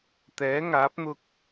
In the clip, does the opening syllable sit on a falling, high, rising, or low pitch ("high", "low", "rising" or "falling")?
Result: rising